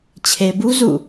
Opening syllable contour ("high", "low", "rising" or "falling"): low